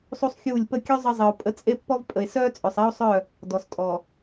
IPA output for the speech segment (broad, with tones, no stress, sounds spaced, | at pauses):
sˤ u˦ sˤ xʲ uː˦˨ lʲ p ə˦˨ kʲ ø˦ zˤ ə˦ zˤ ə˨ o̯ pʼ ə˦ t͡sʼ e˦ pː ɔ˦ v pʼ ə˨ e̯ s œː˦ t͡sʼ ø˨ sˤ ɛ˦ o̯ sˤ œ˦˨ | d ɔ˨ s tʼ ɔ˨